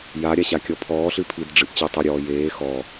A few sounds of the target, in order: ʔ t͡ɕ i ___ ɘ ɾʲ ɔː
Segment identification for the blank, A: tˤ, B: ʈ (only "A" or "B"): A